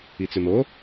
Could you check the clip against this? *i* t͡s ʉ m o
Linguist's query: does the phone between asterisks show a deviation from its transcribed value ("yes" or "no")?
no